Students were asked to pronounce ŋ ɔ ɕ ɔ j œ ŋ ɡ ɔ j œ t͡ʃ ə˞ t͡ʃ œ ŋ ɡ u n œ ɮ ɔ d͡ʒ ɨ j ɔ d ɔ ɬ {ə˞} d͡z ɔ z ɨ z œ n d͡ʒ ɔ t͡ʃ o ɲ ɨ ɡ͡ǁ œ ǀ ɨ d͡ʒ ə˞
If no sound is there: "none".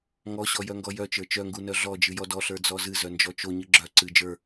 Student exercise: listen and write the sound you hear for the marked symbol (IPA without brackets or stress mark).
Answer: ə˞